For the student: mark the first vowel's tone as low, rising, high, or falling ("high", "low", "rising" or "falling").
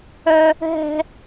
high